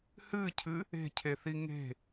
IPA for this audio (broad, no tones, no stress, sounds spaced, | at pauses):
h ɨ cʰ ɨ | e̤ cʰ e θ i ŋ e̤